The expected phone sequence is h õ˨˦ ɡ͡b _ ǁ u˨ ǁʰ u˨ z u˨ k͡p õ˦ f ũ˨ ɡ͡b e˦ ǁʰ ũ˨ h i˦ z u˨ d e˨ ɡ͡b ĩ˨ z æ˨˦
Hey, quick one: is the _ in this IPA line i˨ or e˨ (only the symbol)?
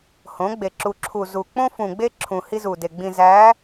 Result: e˨